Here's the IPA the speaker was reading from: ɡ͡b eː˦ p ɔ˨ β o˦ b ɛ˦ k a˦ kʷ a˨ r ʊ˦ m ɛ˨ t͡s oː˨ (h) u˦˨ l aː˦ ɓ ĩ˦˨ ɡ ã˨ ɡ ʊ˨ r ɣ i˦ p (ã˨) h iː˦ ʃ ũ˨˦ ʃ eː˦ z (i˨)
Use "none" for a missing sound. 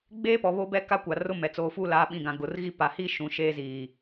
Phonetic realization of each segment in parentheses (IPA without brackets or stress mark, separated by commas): f, a˨, iː˨